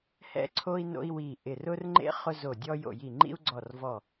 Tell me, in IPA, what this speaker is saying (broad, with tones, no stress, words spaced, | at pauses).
hɛ̰˥ǀʰo˥i̯ no̰˥i̯wi˦˨ʔɪ˦˨ rʊ˥rŋ͡ǃḛ˥ χʊ˥zo˦˨dʲɔ˥ jo̰˦˨ji˦˨ŋ͡ǃḭ˥u̯ ɡ͡ǀɔ˦˨r vɔ˦˨